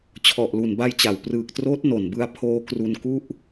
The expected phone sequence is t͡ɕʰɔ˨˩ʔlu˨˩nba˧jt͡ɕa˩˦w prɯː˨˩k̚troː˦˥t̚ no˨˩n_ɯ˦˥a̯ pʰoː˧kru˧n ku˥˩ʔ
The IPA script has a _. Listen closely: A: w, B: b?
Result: B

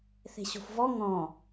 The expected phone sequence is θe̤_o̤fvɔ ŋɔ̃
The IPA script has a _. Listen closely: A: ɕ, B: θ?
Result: A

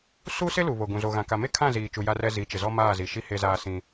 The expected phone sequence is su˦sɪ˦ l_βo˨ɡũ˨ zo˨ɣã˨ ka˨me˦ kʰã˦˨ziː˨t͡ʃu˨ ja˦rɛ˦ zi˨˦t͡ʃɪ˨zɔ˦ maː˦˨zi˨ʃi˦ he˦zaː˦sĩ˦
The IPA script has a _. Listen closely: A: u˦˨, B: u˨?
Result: B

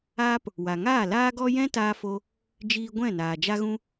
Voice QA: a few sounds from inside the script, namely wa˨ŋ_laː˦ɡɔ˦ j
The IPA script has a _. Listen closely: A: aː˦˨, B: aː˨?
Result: A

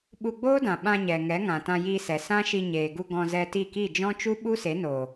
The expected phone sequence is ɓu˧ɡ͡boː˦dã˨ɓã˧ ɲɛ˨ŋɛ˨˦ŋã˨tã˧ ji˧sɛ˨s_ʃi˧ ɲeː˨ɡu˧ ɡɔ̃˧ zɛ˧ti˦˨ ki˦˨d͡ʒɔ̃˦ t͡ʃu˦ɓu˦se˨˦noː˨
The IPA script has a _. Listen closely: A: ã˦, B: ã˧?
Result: A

